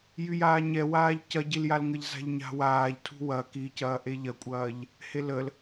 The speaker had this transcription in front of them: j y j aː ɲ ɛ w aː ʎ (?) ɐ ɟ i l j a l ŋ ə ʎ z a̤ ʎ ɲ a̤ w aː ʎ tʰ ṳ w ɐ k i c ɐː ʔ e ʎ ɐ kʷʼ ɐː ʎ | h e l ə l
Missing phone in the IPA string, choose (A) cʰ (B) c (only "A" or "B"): B